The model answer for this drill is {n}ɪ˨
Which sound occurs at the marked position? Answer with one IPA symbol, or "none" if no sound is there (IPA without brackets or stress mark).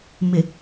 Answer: m